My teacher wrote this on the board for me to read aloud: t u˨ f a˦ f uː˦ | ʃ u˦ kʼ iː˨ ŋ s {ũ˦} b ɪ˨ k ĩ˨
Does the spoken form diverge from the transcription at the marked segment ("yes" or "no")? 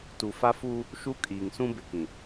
no